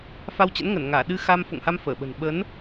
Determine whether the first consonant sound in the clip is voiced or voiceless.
voiceless